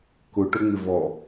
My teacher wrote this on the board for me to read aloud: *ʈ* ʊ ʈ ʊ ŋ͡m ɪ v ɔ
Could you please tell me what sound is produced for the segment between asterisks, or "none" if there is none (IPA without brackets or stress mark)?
k